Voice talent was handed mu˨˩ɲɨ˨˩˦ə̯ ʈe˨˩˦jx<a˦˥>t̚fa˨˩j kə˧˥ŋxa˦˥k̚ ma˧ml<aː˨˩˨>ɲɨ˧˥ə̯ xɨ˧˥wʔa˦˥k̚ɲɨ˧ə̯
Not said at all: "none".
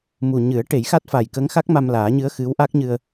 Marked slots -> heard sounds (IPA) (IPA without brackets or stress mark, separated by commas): a˦˥, aː˨˩˦